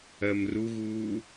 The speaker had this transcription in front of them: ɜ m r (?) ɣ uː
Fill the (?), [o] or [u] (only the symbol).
u